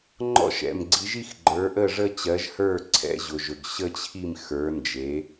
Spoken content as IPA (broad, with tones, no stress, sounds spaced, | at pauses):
ŋ͡ǃ ɔ̰˥˩ ʃ ɛ̰˩ m ɡ͡ǀ i˩˥ ʒ i˥˧ x ɡ͡ǃ ə˞˩˥ ʔ ə˥˩ ʐ ə˥˧ t͡ɕ ɜ˩˥ ʒ h ə˞˥˩ ǀʰ ɛ̰˥˧ ʑ ʊ˩ ʒ ɵ˩ ɡ ɕ ə˥˧ t͡ɕʰ i˥˩ m x ə˞˩˥ n d͡ʒ e˩˥